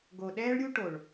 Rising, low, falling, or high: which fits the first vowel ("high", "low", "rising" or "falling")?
low